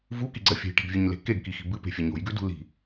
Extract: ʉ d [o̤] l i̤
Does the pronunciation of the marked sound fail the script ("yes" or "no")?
yes